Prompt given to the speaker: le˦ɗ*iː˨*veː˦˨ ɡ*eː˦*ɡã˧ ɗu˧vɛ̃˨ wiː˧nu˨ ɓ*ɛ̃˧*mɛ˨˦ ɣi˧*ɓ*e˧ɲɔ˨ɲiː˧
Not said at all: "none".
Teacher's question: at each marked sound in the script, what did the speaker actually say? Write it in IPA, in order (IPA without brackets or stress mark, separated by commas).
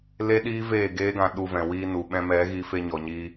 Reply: iː˦, eː˦, ɛ̃˧, f